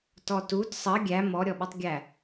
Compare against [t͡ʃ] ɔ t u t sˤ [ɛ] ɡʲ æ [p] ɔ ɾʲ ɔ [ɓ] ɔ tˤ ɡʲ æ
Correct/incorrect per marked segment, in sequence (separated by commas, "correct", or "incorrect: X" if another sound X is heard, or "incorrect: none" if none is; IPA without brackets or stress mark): incorrect: t, incorrect: ə, incorrect: m, correct